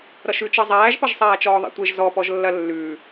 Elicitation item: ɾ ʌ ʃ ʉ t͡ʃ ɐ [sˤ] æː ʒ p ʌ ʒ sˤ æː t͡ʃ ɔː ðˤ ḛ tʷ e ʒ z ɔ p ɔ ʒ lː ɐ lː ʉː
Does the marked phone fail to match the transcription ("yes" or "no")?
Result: yes